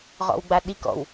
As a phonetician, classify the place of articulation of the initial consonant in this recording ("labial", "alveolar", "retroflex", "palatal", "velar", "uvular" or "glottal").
uvular